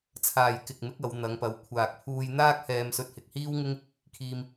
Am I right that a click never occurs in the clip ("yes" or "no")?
yes